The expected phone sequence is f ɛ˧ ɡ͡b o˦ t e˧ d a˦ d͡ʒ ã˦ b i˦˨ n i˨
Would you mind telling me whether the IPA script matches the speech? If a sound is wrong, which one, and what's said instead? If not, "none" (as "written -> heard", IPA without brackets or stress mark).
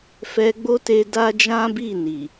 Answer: none